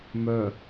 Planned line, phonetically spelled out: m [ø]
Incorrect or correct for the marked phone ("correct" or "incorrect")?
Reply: incorrect